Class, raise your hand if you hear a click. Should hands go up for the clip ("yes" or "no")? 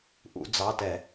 no